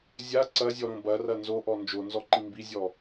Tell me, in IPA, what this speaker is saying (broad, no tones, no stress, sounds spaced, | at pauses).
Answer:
zʲ a ǀ ɐ zʲ ɔ ɾ õ b ɐ r ɐ n z o ʔ ɔ n d͡ʒ o n z ɔ ǃ ĩ m b i zʲ ɔ